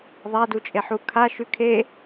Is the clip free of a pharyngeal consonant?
no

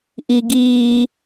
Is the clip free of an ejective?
yes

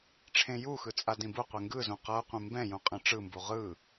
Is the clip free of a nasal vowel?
no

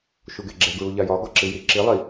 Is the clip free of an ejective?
yes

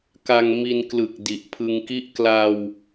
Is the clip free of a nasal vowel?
yes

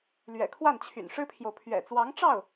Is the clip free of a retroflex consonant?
no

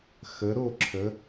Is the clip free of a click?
no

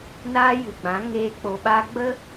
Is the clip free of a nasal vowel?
no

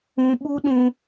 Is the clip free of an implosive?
no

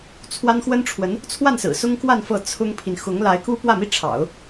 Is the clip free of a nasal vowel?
yes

